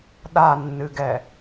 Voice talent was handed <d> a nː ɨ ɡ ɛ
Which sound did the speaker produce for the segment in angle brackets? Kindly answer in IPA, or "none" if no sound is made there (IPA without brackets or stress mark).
ɗ